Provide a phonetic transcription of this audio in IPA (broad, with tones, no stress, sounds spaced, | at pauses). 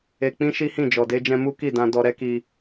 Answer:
e˧ k͡p ĩ˦ ʃ i˦ h ĩ˦˨ d͡ʒ ɔ˨ d e˧ d͡ʒ ɛ̃˧ m u˦ k i˦˨ d ã˧ d ɔ˧ ɾ ɛ˦ k i˧